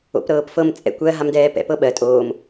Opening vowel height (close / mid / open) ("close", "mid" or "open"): mid